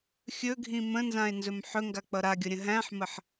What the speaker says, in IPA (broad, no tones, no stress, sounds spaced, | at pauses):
xʲ ɵ ɡʱ ĩ m ə̃ n z ã e̯ n z ɵ m ħ ɵ ŋ ɡ a k͡p ʌ ɾ a ɡʲ ʌ ɾʲ ə̃ ɦ æ̃ ħ m ə ħ